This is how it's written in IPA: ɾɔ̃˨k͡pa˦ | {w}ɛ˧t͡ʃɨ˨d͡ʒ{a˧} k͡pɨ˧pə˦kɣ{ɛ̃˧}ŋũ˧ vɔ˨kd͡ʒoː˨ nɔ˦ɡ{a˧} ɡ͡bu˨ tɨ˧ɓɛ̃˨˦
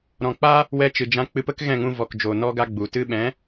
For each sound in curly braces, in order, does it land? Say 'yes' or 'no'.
yes, no, no, no

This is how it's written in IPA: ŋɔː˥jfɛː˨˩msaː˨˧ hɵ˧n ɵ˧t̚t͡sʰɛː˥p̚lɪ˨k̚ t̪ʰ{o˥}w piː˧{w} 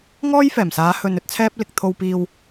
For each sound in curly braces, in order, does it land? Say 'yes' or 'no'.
no, yes

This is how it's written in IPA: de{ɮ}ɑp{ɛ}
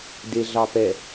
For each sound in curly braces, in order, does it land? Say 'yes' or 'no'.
yes, yes

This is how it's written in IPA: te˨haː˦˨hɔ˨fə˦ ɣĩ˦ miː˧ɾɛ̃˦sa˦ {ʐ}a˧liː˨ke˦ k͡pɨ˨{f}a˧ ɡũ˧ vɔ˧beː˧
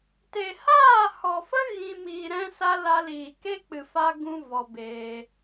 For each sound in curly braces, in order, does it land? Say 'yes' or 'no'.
no, yes

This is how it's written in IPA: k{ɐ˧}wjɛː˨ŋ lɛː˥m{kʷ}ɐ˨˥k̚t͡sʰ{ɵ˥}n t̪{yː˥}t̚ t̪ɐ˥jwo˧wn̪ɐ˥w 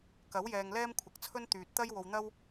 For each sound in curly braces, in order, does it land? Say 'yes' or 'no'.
no, no, yes, no

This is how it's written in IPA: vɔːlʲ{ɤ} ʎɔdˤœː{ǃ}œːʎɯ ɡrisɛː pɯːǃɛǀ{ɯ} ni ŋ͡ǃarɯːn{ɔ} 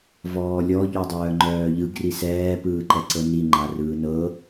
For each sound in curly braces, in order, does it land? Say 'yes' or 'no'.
no, no, no, no

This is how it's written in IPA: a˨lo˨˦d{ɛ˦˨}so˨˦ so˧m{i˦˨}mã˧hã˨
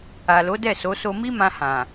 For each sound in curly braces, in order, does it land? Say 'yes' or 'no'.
yes, no

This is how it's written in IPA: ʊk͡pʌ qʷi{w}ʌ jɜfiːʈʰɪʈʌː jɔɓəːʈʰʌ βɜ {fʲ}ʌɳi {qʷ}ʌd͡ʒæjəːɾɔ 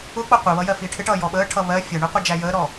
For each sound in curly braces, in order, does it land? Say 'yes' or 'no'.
no, yes, yes

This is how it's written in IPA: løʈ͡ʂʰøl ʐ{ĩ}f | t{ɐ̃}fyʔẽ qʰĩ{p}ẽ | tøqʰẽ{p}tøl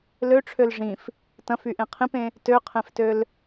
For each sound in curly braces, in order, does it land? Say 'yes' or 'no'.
yes, yes, yes, no

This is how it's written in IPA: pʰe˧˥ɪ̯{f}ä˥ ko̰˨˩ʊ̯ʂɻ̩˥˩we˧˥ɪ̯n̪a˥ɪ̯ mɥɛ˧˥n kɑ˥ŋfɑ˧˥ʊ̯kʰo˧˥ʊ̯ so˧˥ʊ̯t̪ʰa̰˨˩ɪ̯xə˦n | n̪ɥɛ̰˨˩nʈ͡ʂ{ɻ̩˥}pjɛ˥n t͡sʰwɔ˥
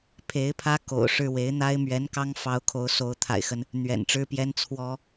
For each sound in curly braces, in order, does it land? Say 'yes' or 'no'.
no, yes

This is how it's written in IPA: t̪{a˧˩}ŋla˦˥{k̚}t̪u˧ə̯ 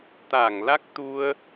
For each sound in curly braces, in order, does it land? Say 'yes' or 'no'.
yes, yes

